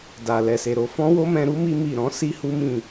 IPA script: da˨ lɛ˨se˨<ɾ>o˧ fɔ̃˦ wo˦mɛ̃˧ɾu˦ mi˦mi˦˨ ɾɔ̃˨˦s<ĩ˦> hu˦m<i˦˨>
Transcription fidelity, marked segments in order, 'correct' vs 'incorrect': correct, incorrect, incorrect

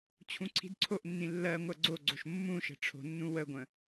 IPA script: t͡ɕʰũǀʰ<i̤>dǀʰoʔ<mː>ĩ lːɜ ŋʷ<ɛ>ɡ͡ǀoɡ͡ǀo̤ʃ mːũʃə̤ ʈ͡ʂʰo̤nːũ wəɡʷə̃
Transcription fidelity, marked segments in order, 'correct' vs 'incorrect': correct, incorrect, incorrect

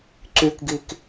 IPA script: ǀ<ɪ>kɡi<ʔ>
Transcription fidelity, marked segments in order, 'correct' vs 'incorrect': incorrect, incorrect

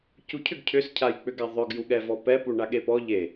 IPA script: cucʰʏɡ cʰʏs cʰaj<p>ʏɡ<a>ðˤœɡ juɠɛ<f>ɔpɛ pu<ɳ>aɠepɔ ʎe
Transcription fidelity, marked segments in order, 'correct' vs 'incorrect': incorrect, correct, incorrect, correct

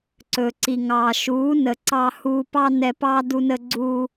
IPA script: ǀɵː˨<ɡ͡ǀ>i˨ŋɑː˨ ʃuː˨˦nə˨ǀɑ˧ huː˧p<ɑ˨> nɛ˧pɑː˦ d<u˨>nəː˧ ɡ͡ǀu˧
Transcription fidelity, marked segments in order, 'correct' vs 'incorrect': incorrect, incorrect, incorrect

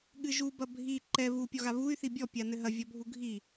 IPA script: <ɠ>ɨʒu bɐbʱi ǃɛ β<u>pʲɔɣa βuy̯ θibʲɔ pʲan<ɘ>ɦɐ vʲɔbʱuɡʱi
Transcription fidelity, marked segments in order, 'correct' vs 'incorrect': correct, correct, correct

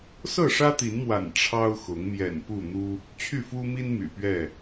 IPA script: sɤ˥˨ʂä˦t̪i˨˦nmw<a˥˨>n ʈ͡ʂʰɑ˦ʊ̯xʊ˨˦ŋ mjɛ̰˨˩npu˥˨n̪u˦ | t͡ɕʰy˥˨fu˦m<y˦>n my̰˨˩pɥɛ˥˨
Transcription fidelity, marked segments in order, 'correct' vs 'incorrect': incorrect, incorrect

